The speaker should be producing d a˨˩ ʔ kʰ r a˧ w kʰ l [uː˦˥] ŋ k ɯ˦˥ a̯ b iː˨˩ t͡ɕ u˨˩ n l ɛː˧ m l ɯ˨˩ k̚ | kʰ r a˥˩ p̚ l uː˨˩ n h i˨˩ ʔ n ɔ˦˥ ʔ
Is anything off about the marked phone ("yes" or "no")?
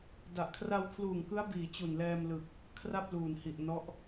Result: yes